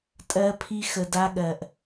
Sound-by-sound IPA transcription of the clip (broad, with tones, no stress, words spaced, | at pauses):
tʼɜ˧pʰi˧ xə˨da˧ɠɜ˨ʔ